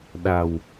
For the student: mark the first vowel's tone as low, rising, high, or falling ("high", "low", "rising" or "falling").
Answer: low